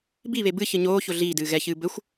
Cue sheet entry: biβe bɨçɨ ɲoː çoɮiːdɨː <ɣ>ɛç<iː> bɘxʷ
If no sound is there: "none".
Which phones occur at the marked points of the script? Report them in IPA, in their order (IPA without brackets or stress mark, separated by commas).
ɣ, ɨː